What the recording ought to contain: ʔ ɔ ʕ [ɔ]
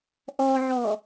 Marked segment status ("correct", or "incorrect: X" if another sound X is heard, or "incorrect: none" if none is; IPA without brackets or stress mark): correct